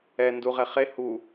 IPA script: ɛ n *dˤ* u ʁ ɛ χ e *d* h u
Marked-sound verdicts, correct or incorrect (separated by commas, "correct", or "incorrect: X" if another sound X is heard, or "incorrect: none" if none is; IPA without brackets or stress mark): incorrect: d, incorrect: none